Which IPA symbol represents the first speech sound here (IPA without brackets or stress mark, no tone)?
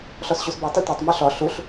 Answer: ɬ